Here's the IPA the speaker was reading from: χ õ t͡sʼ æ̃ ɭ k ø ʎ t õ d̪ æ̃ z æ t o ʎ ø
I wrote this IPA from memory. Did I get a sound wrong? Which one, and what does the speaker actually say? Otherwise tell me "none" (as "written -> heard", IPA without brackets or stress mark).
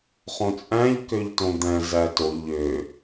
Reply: ɭ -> ʎ